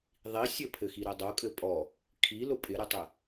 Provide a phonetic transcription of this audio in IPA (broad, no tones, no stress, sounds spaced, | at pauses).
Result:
ðˤ i sʲ ɘ pʰ ɘ x i ɾ ɘ dˤ o kʼ ɘ pʼ ɔ | kʰ i l ʊ pʼ ɪ ɾ ɘ tˤ ɪ